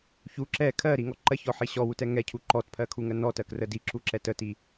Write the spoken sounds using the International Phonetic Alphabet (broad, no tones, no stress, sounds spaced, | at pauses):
ç u ǁ ɛ kʰ ɜ ɾ i ŋ ɔ ǃ ɜ ç ɔ ħ i ɕ ɔ w u t ɛ ŋ ɛ cʰ u ǃ ɔ t pʰ ɜ kʰ u ŋ ɜ n ɔ t ɜ k r ə d i ǁ u ǁ ɛ t ə t i